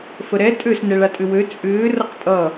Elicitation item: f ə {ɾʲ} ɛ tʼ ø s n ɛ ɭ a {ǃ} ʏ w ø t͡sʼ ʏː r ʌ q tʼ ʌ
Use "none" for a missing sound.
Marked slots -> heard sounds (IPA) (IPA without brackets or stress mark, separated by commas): ɾ, tʼ